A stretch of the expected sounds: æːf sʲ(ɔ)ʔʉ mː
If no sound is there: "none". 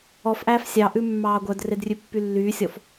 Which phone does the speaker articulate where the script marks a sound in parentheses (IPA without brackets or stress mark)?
ɑ